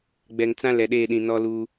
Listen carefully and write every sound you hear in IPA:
ɡ͡b ɛ˨ ŋ t͡s ã˦ l ɛ˨ ɗ eː˦˨ ɗ ĩ˨ n ɔ˦ l uː˦

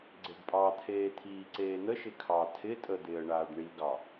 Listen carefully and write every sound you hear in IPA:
ɡ͡ǀ e ɖ pʼ ɑ t̪ʰ eː t̪ʰ iː ǀ eː n̪ ə ʃ ɪ kʰ ɑ tʰ ɪ tʼ ə d̪ ɪː ə̯ ɳ aː ɖ ɳ i ɡ ɑ

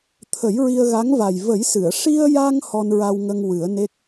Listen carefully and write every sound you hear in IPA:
t̪ʰ ə˨˩˦ j ɹ i˧ ə̯ ɣ a˧˥ ŋ v a˨˩ j v ə˨˩˦ j s ɨ˨˩˨ ə̯ ʂ i˧ ə̯ j a˧ ŋ h ɔ˧ n ɹ a˧ w ŋ ə˧ ŋ w ɨ˨˩˦ ə̯ n e˦˥ k̚

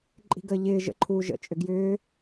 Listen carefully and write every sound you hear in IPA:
ǃʼ i̤ ɡ əː ʎ ɪː ʒ ə̰ ǃʰ uː ʒ ə̰ t͡ʃʼ ʏ ɡ j ʏː

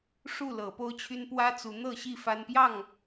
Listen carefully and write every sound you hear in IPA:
ʂ u˥˨ l ɤ˨˦ p o˦ ʊ̯ t͡ɕʰ y˦ n p w ä˦ t͡s u˨˦ n̪ ɤ˥˨ ɕ i˥˨ f a˦ n p j ɑ˥˨ ŋ

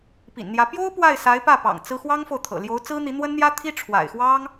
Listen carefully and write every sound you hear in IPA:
p ḭ˨˩ n n̪ j ä˧˥ p j o˥ ʊ̯ p w a˥˩ ɪ̯ s a˧˥ ɪ̯ p ä˥˩ p ɑ̰˨˩ ŋ t͡s ɹ̩˥ x w ɑ˥ ŋ f o˨ ʊ̯ t̪ʰ ɤ̰˨˩ l j o˧˥ ʊ̯ t͡s ɹ̩˥ n̪ i˧˥ n̪ w ə˥ n n̪ j ä˥ t̪ʰ i˥ ʈ͡ʂʰ w a̰˨˩ ɪ̯ x w ɑ˥ ŋ

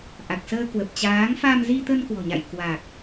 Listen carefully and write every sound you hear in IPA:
ʔ a˨˩ k̚ s əː˧ k w ə˨˩ p̚ t͡ɕ aː˨˦ ŋ f a˧ m z i˧ t̪ ə˧ n k w ɔ̤˨˩ ɲ a̰˧˨ j k w a˨˩ k̚

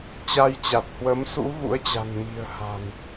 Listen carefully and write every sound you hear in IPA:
t͡ɕ a˧ j t͡ɕ a˨˩ t̚ h w ə˨˦ m s ṵ˧˥ ɣ ṵ˧˥ ə̯ t͡ɕ a̤˨˩ n m i̤˨˩ ə̯ h a̤˨˩ n

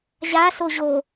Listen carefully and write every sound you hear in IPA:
ʑ a s o ʑ o

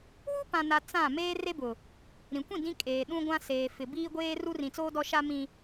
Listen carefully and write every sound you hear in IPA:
w u˦ p ã˨ n a˨ t͡s ã˦˨ m eː˦ r e˦ b ʊ˨ | ɾ ĩ˨ kʷ ĩ˦˨ d ĩ˦ kʼ eː˨ ɗ ũ˦ ɡʷ ã˦ s eː˨ f ɪ˨ b iː˦ ɡʷ eː˦ r u˦ r ĩ˨ t͡s oː˦ d ɔ˦ ʃ a˦ m ĩ˦

